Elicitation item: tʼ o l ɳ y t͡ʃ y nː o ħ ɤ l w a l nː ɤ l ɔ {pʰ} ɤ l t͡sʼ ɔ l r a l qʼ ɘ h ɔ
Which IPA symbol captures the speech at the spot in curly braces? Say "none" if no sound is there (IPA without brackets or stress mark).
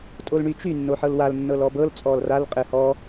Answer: b